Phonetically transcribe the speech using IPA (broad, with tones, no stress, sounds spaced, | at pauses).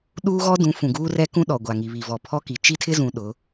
ɗ uː˦ ɣ ɔ˦ d ũ˨˦ f ũ˨ ɡ uː˦ r ɛ˦ k ũ˦ ɗ ɔ˨ ɡʷ a˨ ŋ i˨ β i˨ v ɔ˨ pʰ ɔ˦ k i˨ t͡ʃ i˦ tʰ ɪ˦ z ũ˨ ɗ ʊ˨˦